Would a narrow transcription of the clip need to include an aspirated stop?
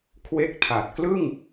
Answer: yes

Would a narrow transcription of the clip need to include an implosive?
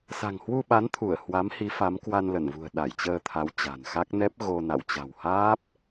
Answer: yes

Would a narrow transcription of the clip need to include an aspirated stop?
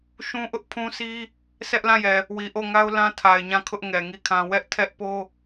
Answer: yes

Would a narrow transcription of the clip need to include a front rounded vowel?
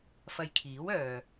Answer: yes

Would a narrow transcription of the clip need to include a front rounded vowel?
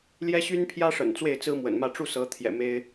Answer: yes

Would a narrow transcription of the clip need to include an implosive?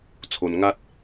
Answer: no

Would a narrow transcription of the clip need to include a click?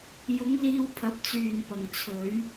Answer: no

